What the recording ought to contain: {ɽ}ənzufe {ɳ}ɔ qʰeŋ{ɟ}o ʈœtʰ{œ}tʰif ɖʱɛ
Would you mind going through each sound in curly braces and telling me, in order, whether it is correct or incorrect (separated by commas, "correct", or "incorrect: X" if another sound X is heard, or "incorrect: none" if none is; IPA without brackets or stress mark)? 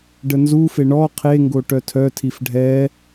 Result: incorrect: ɖ, correct, incorrect: ɡ, correct